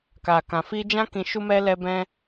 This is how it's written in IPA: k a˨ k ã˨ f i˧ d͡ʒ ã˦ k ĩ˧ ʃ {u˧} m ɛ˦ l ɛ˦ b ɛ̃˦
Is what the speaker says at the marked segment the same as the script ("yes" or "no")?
no